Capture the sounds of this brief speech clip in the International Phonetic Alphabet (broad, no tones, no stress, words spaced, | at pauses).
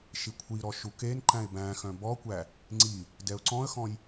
ʃikʷʰiɾɔ ʃukenǃæ̃ɪ̯ bæ̃xœ̃ bɔkʷæ | ŋ͡ǀi | dɛʊ̯ǀɔ̃ə̯xɔ̃j